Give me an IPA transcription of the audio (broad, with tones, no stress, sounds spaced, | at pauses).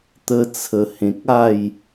t̪ ə˦ t͡sʰ ə˧ h ẽ˨ k̚ a˥˧ j